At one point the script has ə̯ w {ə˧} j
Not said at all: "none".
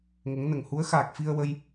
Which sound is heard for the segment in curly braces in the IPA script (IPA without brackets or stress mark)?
ə˧